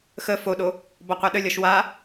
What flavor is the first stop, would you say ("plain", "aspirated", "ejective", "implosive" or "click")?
implosive